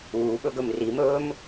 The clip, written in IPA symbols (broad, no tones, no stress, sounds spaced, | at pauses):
uː ɓ ɵ ɡ ɵ m r i m ɵː m